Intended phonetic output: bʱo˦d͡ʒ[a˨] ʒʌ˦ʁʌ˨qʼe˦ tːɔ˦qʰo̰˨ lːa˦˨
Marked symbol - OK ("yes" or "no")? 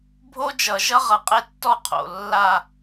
no